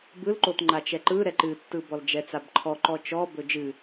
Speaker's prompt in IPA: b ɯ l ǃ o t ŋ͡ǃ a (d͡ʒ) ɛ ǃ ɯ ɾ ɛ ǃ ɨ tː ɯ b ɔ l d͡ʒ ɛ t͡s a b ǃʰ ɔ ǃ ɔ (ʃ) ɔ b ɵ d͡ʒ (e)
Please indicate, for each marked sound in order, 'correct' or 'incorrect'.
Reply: incorrect, incorrect, incorrect

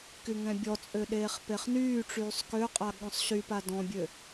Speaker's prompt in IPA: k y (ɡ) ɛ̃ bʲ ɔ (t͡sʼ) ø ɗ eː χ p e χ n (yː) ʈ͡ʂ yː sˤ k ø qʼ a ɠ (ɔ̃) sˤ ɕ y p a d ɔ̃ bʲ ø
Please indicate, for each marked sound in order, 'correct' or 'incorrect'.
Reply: incorrect, correct, correct, correct

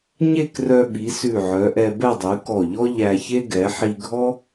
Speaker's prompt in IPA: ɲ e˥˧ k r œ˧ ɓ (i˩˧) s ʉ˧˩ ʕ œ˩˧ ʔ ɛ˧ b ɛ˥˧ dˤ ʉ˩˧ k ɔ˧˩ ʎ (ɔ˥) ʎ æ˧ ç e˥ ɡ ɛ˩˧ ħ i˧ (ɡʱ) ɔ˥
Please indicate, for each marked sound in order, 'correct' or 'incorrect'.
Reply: correct, correct, correct

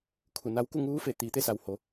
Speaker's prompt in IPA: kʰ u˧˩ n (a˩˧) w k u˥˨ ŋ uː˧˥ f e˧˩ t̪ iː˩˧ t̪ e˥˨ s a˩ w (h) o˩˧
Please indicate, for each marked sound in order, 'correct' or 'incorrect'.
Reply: incorrect, correct

